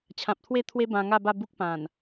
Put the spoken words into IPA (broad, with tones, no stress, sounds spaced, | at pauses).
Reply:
t͡ɕʰ ã˨ p̚ t̪ʰ w e˥˧ t̪ʰ w e˦ b ã˧ ŋ a˥˧ b a˥˧ b u˦ k̚ p ã˨˩ n